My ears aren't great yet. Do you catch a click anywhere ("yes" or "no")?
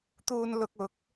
no